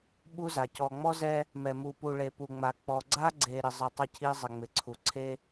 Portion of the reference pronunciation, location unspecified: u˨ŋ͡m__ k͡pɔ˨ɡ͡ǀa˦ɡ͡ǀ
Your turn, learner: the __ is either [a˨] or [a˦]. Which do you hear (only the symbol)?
a˨